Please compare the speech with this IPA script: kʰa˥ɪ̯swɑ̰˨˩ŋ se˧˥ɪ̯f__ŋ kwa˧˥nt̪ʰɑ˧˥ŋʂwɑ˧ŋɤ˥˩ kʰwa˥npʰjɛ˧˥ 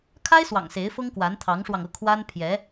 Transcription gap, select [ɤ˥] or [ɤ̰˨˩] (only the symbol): ɤ˥